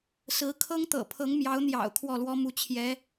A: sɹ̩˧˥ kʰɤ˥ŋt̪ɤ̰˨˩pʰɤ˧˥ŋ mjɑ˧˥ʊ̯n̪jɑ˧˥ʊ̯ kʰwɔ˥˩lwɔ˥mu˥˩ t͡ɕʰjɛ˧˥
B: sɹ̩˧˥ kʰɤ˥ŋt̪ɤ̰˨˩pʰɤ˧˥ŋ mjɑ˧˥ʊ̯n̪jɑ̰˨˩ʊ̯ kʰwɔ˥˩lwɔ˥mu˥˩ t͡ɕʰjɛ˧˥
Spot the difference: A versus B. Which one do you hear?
B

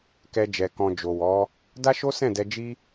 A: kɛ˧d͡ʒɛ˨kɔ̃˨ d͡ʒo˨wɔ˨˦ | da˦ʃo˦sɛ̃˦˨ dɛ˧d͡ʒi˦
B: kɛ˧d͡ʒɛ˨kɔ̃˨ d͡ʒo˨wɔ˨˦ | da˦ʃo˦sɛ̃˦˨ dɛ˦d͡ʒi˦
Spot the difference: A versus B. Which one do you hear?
A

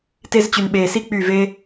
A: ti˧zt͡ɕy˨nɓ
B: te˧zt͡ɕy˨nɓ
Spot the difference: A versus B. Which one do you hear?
B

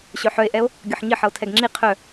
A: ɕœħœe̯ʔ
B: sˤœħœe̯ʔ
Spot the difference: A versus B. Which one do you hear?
A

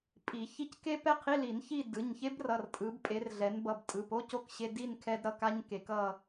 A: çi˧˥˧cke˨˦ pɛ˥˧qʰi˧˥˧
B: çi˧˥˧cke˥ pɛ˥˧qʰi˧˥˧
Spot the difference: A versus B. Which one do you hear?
B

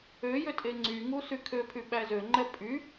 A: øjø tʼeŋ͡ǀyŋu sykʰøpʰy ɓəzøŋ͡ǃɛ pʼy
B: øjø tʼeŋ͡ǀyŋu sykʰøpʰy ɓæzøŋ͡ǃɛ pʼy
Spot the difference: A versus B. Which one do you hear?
B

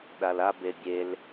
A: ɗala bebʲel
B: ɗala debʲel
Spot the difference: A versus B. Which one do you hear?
A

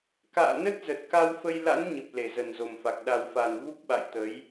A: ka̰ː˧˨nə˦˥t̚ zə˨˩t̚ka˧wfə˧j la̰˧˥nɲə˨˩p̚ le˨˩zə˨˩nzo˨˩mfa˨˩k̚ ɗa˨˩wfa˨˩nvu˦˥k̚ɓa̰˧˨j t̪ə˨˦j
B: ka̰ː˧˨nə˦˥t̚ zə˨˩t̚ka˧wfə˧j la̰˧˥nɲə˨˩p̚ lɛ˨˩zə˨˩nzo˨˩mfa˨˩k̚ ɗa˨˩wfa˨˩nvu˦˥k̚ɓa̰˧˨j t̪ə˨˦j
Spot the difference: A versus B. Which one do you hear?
A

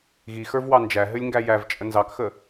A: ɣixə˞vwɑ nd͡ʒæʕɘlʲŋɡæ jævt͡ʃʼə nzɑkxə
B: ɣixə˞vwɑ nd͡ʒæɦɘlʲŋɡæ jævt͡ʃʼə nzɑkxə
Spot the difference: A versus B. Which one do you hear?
B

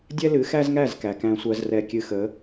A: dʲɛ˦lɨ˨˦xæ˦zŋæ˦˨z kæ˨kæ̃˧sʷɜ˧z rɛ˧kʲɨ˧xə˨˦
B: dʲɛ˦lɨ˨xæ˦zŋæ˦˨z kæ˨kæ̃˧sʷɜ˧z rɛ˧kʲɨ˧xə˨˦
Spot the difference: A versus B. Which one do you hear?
A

